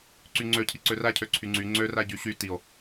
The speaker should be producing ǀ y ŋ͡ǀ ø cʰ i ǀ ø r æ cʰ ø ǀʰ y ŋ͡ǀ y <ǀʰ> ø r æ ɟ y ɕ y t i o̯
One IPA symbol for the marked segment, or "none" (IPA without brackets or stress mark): ŋ͡ǀ